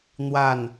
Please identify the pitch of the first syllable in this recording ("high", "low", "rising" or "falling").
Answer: falling